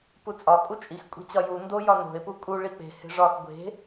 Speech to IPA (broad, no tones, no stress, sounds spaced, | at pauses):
p u t͡sʼ ɒ kʼ u t͡ʃʼ i x kʷʼ e̤ t͡ɕ ɒ j u n d o j ɒ n o̤ e̯ p u kʼ u ɭ i k͡p e̤ h e̤ ʐ ɒ x ɡʷ e̤